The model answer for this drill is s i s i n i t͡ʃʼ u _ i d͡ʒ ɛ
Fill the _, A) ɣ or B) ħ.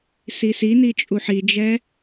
B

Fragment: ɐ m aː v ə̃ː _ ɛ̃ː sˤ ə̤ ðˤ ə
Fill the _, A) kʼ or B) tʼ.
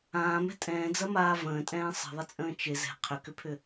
B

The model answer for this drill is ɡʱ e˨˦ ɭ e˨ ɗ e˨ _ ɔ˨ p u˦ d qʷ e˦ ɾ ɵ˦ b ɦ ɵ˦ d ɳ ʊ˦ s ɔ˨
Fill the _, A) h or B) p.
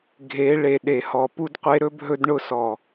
A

